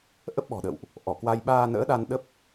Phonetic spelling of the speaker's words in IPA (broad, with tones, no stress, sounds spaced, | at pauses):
ʔ ə˦˥ p̚ ɓ ɔ̤˨˩ ɗ ə̰˧˨ w ʔ | ʔ ɔ˧˩ k w a˧ j ɓ aː˧ n ə̰ː˧˥ ɗ a˧ n ɗ ə˦˥ p̚